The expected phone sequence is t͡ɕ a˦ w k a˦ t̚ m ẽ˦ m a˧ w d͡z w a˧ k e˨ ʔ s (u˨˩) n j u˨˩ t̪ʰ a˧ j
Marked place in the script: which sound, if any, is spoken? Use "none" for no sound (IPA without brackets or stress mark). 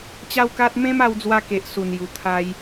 u˨˩